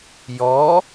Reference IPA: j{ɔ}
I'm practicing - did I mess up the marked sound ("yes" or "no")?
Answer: no